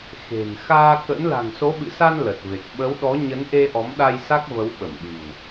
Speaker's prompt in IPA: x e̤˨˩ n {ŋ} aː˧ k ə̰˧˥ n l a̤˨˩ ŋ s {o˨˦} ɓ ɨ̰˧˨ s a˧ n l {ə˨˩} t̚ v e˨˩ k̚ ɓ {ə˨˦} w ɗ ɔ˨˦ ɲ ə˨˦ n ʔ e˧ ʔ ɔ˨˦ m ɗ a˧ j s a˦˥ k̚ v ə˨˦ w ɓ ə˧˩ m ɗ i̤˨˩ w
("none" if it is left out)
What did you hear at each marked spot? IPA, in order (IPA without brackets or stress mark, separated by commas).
x, o˨˦, ə˨˩, ə˨˦